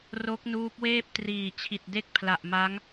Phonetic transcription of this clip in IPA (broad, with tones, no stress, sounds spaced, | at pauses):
r o˦˥ k̚ n uː˦˥ p̚ w eː˥˩ p̚ t r iː˨˩ t͡ɕʰ i˨˩ t̚ d e˥˩ k̚ pʰ l a˨˩ ʔ m a˦˥ ŋ